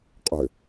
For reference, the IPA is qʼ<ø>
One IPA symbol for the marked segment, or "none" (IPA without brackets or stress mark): ø